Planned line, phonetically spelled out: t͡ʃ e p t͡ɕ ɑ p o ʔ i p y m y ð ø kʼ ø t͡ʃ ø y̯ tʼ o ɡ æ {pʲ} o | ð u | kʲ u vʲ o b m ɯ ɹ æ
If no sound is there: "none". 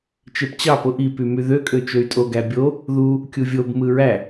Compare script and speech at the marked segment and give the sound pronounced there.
bʲ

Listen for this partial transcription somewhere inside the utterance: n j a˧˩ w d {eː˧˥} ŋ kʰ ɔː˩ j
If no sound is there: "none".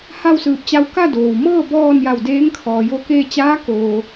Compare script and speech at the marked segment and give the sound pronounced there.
eː˧˥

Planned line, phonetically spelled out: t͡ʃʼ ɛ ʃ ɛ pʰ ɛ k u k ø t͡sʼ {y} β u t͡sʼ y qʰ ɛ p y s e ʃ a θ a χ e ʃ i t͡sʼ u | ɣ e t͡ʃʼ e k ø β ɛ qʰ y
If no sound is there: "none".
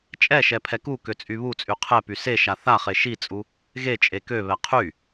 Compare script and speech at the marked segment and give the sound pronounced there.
y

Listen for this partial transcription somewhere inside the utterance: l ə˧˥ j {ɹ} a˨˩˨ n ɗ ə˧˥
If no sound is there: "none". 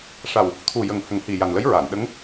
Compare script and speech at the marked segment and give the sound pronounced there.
ɹ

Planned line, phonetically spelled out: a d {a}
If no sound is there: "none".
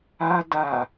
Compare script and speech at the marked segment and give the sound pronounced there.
a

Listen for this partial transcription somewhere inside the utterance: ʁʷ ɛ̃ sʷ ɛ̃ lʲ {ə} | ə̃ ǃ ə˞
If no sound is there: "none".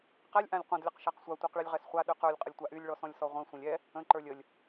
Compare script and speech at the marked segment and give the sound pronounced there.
ɛ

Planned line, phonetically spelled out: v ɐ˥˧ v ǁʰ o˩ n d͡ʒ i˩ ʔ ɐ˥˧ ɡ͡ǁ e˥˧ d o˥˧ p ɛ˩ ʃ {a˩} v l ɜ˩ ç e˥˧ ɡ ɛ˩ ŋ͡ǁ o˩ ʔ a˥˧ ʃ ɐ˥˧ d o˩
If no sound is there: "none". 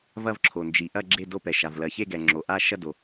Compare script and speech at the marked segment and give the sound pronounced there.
a˩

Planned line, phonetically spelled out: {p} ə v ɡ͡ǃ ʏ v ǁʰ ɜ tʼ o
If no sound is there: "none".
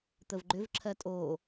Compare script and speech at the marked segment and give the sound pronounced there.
t̪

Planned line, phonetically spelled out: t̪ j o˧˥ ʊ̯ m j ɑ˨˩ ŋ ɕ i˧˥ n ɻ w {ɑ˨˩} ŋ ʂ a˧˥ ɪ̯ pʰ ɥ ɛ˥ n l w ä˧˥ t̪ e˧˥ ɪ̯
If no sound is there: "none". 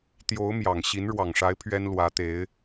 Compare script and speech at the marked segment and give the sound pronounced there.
ɑ˨˩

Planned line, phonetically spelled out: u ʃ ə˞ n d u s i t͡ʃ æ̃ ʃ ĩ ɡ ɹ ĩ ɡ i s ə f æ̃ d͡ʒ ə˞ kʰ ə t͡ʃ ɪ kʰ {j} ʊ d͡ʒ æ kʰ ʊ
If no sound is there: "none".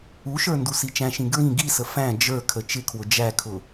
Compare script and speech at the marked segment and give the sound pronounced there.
w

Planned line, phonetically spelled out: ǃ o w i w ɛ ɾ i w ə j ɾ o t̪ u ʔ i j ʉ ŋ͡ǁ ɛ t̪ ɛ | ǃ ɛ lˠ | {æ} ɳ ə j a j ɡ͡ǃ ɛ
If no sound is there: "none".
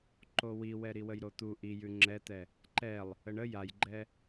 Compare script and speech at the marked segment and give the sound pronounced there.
ə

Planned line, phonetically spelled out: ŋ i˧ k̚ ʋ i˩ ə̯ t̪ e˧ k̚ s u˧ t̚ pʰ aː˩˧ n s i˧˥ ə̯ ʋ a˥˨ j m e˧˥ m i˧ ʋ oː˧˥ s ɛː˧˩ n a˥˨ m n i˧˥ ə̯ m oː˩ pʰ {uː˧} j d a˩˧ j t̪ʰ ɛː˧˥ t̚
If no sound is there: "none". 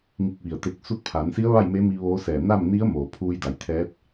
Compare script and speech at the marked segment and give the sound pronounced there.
uː˧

